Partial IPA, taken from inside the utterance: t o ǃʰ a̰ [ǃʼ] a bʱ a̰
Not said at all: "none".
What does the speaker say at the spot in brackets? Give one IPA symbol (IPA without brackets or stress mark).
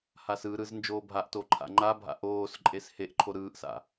ŋ͡ǃ